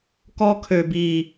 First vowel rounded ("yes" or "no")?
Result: yes